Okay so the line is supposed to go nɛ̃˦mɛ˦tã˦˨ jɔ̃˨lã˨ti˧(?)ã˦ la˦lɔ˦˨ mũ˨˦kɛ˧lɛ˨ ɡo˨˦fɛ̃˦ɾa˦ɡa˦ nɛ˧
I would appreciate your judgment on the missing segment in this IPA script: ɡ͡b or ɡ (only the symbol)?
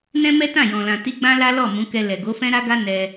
ɡ͡b